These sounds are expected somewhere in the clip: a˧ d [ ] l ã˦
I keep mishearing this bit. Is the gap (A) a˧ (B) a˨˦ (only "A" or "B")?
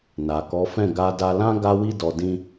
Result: A